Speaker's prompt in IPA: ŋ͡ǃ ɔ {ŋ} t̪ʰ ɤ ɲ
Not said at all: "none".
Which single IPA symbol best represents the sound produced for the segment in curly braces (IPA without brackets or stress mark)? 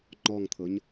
ŋ